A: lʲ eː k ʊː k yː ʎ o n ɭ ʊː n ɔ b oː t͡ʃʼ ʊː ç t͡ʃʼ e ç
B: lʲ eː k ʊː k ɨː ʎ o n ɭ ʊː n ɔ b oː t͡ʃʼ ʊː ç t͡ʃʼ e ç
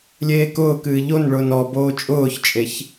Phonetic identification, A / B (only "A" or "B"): B